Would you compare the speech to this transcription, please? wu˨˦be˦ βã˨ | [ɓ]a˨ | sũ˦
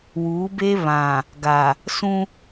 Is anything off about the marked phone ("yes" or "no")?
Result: yes